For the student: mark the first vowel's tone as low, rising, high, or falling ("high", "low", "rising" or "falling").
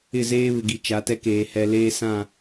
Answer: falling